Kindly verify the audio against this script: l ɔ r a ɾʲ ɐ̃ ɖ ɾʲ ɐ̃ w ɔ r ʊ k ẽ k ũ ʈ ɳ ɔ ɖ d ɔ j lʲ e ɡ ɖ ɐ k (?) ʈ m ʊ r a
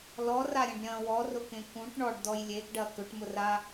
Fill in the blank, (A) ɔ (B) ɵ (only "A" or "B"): B